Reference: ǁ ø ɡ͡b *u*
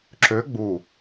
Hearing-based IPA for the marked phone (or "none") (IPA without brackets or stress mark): u